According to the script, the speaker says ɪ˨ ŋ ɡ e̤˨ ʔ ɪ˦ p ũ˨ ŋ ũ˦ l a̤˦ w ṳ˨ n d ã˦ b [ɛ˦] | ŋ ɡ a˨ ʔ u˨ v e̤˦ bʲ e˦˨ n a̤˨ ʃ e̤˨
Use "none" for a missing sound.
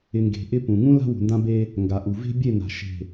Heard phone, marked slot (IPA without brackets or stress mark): e˦